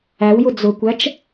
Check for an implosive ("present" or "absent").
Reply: absent